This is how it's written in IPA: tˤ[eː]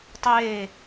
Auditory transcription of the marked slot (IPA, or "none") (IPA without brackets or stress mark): eː